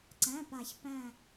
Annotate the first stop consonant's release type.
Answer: click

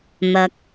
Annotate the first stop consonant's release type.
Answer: plain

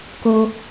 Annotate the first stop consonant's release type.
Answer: plain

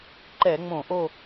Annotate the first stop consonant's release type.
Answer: click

